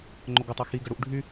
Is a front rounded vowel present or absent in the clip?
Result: present